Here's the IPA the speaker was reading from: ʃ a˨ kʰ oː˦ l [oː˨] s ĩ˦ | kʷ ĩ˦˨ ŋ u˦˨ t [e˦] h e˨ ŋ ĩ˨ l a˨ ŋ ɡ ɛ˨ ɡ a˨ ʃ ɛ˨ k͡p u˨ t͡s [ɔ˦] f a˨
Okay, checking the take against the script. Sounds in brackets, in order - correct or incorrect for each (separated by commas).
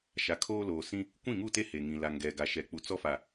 correct, correct, correct